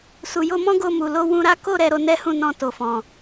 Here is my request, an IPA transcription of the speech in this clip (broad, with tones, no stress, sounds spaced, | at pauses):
s u˨ j o˧ m ɔ̃˦ ɡ o˧ m u˨ l o˧ w ũ˧ ɾ a˦ k o˦˨ ɾ ɛ˧ ɾ o˧ n ɛ˦ h ũ˦˨ n ɔ̃˧ t o˨ f ɔ̃˨